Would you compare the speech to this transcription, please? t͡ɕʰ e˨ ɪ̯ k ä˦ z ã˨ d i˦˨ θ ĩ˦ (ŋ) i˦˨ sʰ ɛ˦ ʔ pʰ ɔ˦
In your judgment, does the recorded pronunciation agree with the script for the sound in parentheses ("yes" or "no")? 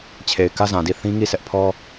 yes